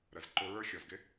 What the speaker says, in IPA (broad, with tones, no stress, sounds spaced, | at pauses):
ɾ ə˨ z ǃ ʊ˧ ɹ ə˞˦ xʲ ɔ˨ z ɡ ɪ˦